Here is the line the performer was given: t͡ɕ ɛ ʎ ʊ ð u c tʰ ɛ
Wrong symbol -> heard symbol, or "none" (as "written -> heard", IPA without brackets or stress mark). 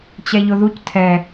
none